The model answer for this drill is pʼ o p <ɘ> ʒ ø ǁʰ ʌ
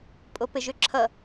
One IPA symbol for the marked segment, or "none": ɘ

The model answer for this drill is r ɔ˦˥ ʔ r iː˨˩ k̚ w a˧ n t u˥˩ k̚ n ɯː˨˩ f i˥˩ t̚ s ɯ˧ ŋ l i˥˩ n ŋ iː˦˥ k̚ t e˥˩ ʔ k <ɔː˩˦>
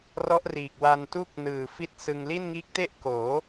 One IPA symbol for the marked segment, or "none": oː˩˦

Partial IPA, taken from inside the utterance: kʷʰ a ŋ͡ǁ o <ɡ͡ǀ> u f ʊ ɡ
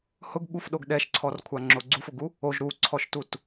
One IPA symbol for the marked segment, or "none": ɡ͡ǀ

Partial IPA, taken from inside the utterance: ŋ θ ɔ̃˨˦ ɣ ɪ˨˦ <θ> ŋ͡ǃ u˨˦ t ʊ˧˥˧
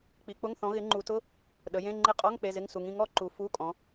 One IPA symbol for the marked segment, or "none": none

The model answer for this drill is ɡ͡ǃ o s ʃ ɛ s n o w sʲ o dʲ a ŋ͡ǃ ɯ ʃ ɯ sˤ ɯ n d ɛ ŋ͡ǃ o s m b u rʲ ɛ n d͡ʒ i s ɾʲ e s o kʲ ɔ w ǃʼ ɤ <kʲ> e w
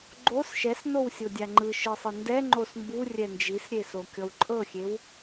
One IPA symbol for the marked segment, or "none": xʲ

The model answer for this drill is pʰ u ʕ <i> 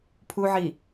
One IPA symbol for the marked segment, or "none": i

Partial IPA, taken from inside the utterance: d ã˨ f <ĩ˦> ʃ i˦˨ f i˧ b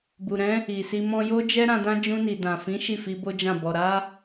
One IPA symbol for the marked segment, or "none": ĩ˨˦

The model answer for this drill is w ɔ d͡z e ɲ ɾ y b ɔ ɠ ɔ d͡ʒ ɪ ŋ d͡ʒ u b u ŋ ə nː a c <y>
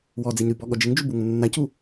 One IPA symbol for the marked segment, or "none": u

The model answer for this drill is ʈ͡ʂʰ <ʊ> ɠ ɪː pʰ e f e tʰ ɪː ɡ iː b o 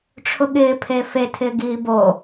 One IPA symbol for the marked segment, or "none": ʊ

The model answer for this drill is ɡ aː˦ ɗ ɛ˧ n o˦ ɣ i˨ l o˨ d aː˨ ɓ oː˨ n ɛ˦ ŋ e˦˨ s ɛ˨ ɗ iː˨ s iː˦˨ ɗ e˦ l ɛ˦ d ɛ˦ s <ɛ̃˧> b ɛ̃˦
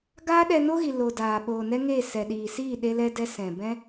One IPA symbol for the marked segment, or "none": ɛ̃˨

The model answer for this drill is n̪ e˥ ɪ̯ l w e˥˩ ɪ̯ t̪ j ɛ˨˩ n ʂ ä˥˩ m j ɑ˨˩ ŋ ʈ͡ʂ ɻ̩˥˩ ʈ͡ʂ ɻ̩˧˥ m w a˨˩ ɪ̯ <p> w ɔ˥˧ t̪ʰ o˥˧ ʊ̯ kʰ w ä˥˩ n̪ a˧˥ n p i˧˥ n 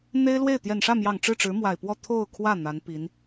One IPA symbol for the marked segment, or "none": p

